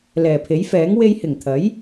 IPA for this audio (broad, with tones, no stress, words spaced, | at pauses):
lɛː˨˩pʰe˨˥jfɛː˨˥ŋ we˧jhɪ˨˩ŋt̪ʰɐ˨˥j